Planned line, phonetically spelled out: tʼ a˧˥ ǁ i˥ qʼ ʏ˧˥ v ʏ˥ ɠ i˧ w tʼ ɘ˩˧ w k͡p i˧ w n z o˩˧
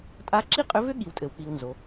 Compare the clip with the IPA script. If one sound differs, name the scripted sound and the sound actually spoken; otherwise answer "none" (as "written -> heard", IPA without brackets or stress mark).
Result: none